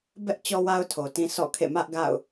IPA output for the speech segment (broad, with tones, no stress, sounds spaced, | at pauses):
b ɛ˦ ʔ t͡ɕ ɔ˦ w a˦ ʊ̯ tʰ o˨ t ĩ˦ sʰ ɔ̰˦˨ kʰ ḛ˦˨ m ä˦ ʔ ɡ a̰˦˨ ʊ̯